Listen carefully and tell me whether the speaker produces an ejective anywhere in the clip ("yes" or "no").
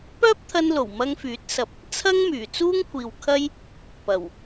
no